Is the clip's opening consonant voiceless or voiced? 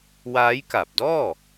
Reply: voiced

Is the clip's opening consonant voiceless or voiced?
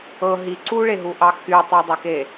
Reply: voiced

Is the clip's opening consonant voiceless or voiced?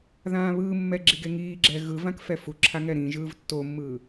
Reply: voiced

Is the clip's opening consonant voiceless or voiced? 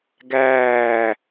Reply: voiced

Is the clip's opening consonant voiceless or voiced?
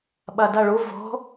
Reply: voiced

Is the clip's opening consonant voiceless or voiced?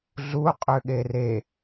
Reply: voiced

